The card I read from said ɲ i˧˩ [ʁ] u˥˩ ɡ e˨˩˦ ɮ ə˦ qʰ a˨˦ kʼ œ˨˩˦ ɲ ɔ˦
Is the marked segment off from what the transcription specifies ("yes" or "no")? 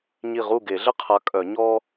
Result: no